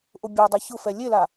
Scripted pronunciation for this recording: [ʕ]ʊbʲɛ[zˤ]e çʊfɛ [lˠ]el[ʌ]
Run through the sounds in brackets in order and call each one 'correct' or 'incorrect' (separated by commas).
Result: incorrect, incorrect, incorrect, incorrect